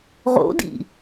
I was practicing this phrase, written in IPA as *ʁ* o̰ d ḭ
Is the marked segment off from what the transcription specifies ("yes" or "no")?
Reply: no